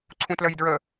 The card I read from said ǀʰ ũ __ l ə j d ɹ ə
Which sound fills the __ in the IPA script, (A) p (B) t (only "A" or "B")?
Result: B